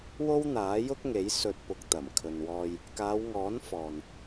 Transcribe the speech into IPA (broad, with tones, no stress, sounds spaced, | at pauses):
w o˥ w n̪ aː˨˥ j ʊ˥ k̚ ŋ e˨˥ j s ɵ˧ t̚ p ʊ˧ k̚ t̪ ɐ˨˩ m kʰ ɵ˨ n w ɔː˧ j | k aː˨˧ w ŋ ɔː˨˥ n f ɔː˨ n